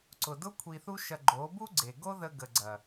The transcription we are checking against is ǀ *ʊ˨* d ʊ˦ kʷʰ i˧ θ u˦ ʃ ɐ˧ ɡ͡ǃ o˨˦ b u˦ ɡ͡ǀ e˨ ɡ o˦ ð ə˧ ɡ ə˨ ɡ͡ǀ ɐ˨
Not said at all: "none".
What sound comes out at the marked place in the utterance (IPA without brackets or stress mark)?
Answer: ʊ˨